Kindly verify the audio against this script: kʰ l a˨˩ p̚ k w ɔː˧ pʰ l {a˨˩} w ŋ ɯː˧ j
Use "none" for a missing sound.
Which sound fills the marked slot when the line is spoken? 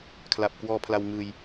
a˧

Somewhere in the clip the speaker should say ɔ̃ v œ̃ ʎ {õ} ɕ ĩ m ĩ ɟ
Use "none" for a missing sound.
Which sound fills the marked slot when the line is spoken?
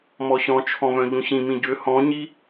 ũ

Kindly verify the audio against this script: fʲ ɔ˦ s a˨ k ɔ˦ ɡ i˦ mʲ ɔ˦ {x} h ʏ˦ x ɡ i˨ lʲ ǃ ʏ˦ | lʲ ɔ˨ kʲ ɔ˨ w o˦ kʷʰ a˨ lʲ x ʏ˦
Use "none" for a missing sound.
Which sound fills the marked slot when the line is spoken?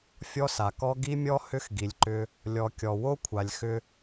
none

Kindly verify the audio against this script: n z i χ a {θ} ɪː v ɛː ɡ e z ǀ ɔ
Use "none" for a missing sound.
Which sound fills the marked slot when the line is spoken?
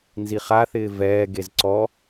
θ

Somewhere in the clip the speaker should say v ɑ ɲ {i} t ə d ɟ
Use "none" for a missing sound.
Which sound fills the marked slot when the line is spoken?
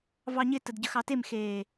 ɪ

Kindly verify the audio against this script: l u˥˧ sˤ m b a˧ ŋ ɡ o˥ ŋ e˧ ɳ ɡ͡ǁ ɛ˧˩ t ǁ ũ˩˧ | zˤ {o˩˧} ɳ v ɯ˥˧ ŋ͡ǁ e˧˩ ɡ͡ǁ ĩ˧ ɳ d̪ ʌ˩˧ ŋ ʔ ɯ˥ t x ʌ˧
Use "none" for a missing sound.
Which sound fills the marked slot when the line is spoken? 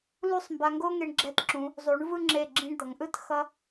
u˩˧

